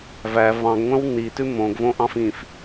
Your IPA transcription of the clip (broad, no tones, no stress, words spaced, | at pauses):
væ vɑ̃ɡŋʷœ̃w nitʉ mõɡvõʔɑ̃f ĩf